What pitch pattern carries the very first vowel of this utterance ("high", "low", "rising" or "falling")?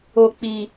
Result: high